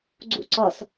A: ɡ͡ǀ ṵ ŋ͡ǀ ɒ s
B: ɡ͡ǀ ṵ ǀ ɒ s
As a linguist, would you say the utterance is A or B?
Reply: B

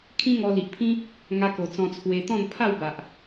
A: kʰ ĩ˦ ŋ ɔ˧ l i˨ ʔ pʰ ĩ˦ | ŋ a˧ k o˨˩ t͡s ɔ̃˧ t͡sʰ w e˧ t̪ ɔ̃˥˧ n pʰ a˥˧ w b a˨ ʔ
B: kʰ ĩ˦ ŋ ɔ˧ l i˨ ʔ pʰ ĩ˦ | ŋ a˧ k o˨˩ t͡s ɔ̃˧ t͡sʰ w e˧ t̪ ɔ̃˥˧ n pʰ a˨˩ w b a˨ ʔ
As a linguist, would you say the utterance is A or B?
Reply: A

